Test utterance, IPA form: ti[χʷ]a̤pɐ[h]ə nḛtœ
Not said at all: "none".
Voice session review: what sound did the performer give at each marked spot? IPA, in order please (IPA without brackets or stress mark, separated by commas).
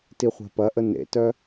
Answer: χʷ, ʔ